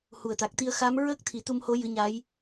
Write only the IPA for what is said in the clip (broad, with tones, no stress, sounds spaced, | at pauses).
h u˨˩ ə̯ t̪ a˨˩ k̚ t̪ i˧ ə̯ x a˧˥ m ɹ əː˦˥ k̚ t̪ʰ i˨˩˦ t̪ u˧ m h o˧˥ j ɨ˧˥ ɲ a˧˥ j